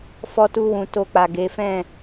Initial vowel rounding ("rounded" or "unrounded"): rounded